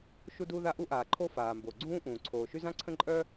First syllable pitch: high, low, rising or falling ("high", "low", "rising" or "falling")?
high